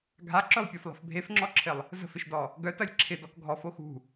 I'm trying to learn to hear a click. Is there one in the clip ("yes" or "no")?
yes